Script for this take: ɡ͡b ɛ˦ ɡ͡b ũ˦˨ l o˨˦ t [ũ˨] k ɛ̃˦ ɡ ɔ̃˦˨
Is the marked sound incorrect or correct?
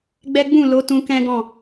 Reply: incorrect